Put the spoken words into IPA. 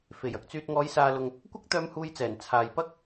f e˨˩ j ɐ˥ k̚ t͡s yː˧ t̚ ŋ ɔː˨˧ j s aː˨ l ʊ˨ ŋ | kʷ ɐ˥ k̚ t̪ œː˧ m h uː˧ j t͡s ɛː˨˩ n t͡sʰ aː˨ j p ɐ˥ k̚

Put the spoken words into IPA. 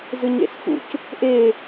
z ɨ ɲ ḛ s f ṵ c | ʔ e

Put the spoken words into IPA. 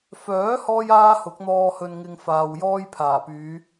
f œː˨˥ h ɔː˥ j aː˥ h ʊ˨˥ k̚ n̪ ɔː˧ h ɵ˧ n ŋ ɪ˧ ŋ f aː˨ w j ɔː˥ j pʰ aː˨˩ p yː˨˧

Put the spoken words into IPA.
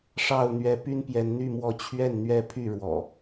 ʂ ɑ˥˨ ʊ̯ n̪ ɥ ɛ˨˦ p y˦ n p j ɛ˨˦ n n̪ y˥˨ m w ɔ˥˨ t͡ɕʰ ɥ ɛ˥˨ n n̪ ɥ ɛ˦ pʰ y˥˨ ɻ w ɔ̰˨˩

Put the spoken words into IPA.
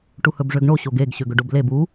ʈ u h ɵ b ʐ ø ɡ ɳ o ɕ o ɡ e ɡ ɕ ø ɡ ɵ ɖ o b l e b u

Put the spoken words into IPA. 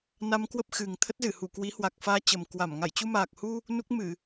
n a˧ m k w ə˦˥ p̚ x ɨ˨˩ ŋ t̪ʰ ə˦˥ t̚ z ɨ˧˩ h u˧˩ k w i˨˦ h w a˨˩ k̚ f aː˧ t͡ɕ ə˨˩ m k w a˧˩ m ŋ a˧˩ j t͡ɕ u˧ m aː˨˩ k̚ h u˧ | n u˦˥ k̚ m ɨ˧˩˨

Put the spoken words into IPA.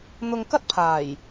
n̪ ʊ˧ ŋ k ɐ˥ t̚ pʰ aː˨˩ j

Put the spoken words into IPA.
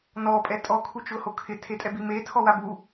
n ɔ pʼ ɛ tʼ ɔ kʰ u t͡ʃ ʊ h o kʰ ɪ tʰ e tʼ ɛ b i m e tʰ ɔ w a b u

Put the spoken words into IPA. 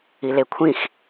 i l e kʷʰ ĩ x

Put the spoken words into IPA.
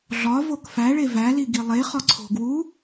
ɮ ɒ v o k f æ ɭ e v æ l i ɡ i lˠ e χ ɒ ǀʰ o̤ ɡ w u

